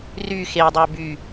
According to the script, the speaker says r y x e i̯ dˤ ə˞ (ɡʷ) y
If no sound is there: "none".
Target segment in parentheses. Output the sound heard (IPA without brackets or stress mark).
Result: b